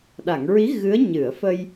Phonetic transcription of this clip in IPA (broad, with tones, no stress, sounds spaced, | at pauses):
ɗ a˨˩˨ ŋ ɹ i˧˥ ɣ ɨ˧˥ ə̯ ɲ ɨ˨˩˨ ə̯ f ə˧ j